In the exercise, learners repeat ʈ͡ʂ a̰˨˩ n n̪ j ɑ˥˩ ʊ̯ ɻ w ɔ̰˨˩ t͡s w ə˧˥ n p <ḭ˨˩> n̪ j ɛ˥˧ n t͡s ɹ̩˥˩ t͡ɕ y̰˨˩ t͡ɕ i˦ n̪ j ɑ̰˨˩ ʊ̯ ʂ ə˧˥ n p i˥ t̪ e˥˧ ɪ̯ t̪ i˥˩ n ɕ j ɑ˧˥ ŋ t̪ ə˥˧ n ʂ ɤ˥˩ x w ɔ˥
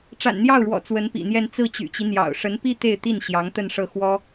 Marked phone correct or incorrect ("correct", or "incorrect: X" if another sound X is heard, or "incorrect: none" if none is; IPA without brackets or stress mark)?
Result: correct